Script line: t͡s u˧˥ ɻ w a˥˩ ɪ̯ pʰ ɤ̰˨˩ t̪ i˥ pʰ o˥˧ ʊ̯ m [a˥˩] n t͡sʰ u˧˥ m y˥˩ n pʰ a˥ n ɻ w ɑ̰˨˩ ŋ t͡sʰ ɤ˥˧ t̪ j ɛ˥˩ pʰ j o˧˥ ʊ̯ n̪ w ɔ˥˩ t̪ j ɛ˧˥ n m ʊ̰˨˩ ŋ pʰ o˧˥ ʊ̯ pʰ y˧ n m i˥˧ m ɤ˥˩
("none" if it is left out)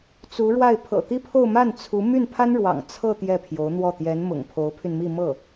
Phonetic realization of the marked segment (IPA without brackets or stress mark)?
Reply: a˥˩